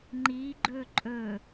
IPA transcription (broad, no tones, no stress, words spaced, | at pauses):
ŋ͡ǃiɡ͡ǃɵ ǃʼɵ